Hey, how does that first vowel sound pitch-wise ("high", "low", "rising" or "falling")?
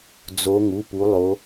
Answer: rising